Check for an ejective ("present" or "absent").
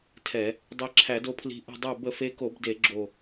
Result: absent